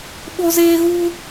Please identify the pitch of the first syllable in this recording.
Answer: high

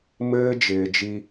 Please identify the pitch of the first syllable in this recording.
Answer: high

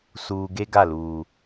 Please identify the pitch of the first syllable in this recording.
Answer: low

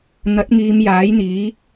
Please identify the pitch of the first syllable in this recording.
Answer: rising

